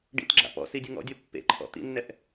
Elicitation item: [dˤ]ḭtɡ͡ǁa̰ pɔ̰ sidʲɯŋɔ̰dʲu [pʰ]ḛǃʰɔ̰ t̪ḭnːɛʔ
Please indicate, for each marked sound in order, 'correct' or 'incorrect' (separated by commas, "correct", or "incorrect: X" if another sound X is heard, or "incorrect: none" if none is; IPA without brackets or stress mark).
incorrect: ɖ, incorrect: pː